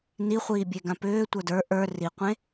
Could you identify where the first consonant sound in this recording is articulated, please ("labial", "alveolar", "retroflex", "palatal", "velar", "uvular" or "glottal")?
alveolar